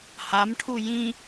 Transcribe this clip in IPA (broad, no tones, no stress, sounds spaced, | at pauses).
h a m ʈʰ u j ĩ